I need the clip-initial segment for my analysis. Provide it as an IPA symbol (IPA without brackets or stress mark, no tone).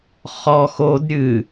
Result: χ